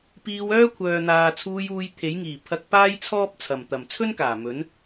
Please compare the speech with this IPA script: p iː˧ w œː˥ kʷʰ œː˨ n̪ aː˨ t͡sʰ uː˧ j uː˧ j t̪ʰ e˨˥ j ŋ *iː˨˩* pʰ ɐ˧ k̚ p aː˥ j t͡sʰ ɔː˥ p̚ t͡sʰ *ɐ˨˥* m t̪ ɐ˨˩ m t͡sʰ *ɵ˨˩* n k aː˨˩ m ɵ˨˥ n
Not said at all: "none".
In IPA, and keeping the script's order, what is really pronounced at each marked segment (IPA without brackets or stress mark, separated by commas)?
iː˨˩, ɐ˨˩, ɵ˥